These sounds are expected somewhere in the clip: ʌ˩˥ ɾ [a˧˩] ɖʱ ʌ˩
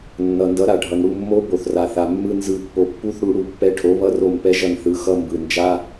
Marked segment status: incorrect: a˩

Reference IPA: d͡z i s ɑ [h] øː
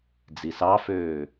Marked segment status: incorrect: f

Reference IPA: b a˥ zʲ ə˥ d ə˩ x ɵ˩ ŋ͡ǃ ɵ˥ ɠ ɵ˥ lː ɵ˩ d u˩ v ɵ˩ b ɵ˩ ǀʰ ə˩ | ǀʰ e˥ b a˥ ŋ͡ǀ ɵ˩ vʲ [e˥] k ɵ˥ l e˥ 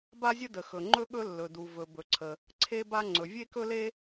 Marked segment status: correct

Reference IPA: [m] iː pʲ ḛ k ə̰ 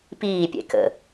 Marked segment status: incorrect: p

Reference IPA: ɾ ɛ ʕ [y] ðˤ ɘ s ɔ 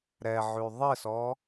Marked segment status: correct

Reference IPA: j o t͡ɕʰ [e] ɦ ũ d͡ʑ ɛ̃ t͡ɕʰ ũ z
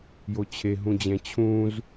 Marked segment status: correct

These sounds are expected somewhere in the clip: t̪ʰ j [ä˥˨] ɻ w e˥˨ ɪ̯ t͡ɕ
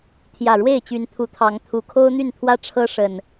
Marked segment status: incorrect: ä˨˩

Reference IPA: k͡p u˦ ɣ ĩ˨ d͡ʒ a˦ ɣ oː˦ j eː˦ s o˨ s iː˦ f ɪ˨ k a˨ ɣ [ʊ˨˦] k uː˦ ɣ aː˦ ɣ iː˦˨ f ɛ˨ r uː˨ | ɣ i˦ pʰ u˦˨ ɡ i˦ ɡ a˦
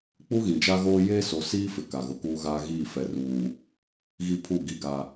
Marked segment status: correct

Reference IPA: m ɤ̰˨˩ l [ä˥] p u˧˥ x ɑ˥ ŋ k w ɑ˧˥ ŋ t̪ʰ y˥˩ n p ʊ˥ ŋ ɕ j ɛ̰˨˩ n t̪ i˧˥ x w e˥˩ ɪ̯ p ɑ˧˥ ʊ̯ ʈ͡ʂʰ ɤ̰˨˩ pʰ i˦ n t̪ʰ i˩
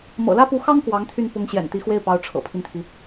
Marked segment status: correct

